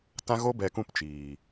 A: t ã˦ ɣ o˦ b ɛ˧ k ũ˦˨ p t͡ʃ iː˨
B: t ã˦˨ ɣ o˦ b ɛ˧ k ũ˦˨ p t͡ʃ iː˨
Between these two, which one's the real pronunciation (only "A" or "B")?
A